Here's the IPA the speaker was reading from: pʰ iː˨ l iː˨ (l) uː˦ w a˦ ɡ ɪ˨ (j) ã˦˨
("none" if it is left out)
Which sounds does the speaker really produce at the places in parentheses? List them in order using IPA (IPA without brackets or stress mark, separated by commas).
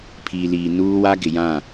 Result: n, j